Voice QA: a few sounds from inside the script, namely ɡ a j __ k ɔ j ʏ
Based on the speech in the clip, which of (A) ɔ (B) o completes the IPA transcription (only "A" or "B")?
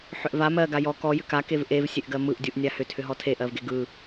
A